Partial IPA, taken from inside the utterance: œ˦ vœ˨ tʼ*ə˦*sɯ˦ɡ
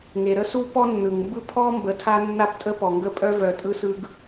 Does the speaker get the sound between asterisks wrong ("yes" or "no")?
yes